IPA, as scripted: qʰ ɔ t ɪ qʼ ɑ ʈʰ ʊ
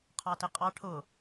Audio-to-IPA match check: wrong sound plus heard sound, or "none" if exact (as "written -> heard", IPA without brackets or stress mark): ɔ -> ɑ